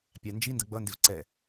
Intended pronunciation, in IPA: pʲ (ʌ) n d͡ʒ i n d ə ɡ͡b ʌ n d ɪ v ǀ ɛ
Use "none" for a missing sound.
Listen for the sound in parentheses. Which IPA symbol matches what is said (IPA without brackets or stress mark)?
ɑ